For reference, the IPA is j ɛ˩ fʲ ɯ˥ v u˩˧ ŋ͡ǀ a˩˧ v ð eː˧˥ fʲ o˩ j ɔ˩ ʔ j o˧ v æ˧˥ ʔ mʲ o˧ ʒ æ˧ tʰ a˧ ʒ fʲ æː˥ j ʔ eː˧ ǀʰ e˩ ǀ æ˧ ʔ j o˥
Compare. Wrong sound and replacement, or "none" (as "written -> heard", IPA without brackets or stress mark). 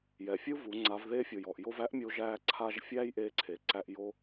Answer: tʰ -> ǀʰ